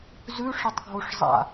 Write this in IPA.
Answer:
z ʉ ʂ ə tˤ ɡʱ o ʂ zˤ a̰

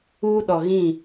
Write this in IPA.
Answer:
uː˦ ɗ ɔ˨ ɣ ĩ˦˨

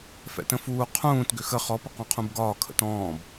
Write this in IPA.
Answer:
f ɛ̰ t ə̃ f uː qʰ ũː t ɡ ʏ x ə χ ɔ p ə q ɔ̃ qʰ ũ b ɡ ɒː kʰ ə̰ t ɔ̃ː b

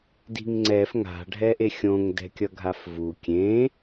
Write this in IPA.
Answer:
d i̤ ŋ ŋ͡ǀ ɛ f ŋ a̤ ɖʱ ɛ ʔ e xʲ õ ŋ d ɛ̤ kʲ ʌ ɡʱ a f v u kʲ ẽ

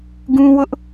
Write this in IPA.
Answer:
ɡ ũ˦ w ʊ˦ ʔ

